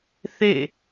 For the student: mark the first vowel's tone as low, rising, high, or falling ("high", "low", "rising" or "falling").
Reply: falling